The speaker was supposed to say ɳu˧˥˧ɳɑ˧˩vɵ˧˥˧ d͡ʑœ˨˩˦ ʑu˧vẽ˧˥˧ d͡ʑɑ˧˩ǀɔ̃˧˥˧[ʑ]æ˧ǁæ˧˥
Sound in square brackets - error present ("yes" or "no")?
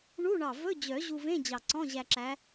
no